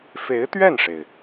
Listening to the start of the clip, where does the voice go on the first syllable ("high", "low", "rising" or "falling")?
rising